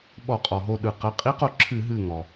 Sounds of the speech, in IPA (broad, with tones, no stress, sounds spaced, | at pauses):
ɓ ɔ˧˩˧ qʼ ɔ˩ ɦ o˧˩ ɗ ɯ˩ q ɜ˩˧˩ qʼ i˧˥ q o˧˩ ǁʰ ɨ˧˩˧ ɦ ɨ˧˩ ŋ ɔ˩